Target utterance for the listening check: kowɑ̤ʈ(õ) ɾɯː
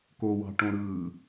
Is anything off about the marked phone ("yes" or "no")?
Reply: no